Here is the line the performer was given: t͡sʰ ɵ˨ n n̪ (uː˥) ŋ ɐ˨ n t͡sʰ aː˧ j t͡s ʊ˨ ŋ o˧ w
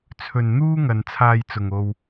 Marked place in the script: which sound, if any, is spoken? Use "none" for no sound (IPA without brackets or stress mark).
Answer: uː˥